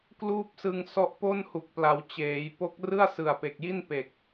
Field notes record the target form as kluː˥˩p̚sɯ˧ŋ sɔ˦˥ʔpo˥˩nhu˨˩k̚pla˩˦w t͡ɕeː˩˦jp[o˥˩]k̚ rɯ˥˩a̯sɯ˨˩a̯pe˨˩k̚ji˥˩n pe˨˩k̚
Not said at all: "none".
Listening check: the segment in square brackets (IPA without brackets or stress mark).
o˦˥